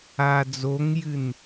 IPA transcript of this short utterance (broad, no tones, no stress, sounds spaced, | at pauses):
aː d͡z o ŋ j ɨ n